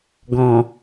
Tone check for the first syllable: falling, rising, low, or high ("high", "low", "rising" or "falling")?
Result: low